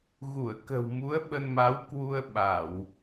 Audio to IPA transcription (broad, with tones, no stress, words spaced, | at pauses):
ɣu˧˩ə̯kə̤˨˩wmu˨˦ə̯ ɓə˧nma˨˦wkwu˧ə̯ ɓa˧˩˨w